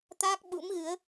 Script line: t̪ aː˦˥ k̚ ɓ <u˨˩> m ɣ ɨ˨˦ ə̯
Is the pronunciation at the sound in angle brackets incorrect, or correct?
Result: incorrect